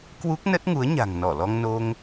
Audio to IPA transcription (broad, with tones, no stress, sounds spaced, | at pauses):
k w u˦˥ k̚ n ə˦˥ t̚ ŋ u˨˦ ə̯ ɲ a̤˨˩ ŋ n ɔ˧˩ l ɔ˧ ŋ n o˧ ŋ